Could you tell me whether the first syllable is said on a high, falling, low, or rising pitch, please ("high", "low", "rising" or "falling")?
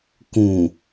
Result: low